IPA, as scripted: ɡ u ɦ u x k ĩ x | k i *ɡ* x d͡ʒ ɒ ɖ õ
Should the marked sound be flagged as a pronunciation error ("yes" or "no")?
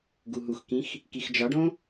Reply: yes